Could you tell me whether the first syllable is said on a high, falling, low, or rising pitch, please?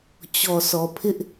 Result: low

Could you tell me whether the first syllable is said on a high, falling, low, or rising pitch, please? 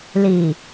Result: low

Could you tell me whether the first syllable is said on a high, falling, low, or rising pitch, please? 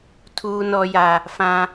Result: high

